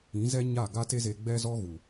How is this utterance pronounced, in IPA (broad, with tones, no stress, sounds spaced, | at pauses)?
ĩ˨˦ z ɛ˦ ɲ a˦˨ ɡ a˦ t e˦ z e˧ ɡ͡b ɛ˦ z ɔ˦ ɣ u˨